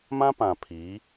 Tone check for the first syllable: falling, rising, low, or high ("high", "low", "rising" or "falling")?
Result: high